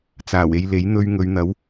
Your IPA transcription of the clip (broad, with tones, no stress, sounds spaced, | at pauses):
t͡s aː˨˩ w e˧ j l e˨˥ j n̪ ɵ˧ ɥ ŋ ɵ˨˧ ɥ n̪ ɐ˨˥ w